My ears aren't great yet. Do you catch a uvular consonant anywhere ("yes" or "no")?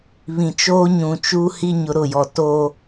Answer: no